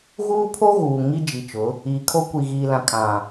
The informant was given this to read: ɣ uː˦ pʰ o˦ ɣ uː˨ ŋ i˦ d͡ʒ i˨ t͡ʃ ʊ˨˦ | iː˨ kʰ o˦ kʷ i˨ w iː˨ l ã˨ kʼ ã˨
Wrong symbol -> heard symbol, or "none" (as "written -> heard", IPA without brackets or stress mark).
w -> ɣ